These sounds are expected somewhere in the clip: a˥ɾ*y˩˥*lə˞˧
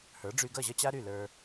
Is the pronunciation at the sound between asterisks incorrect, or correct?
incorrect